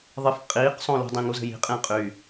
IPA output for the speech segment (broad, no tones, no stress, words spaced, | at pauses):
ðˤɪf qʼiːqsˤõlṳdˤĩ ŋuzə̤ji̤qʼẽː qʼy